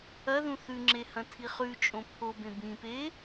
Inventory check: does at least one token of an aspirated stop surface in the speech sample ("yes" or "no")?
yes